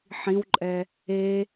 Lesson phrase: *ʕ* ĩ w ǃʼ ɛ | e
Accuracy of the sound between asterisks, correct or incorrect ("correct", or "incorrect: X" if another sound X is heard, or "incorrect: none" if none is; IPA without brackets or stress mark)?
incorrect: ħ